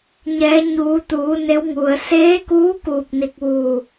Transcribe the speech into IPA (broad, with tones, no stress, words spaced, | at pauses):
ɲɛː˩˧ɲuː˩˧t̪uː˩˧ ne˧˥wŋu˩ə̯ seː˧˥kuː˧˥ kuː˧˩p̚ni˧˩k̚ʋuː˧˩